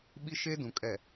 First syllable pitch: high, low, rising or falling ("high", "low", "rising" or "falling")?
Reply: high